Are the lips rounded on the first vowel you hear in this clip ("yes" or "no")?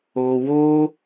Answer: yes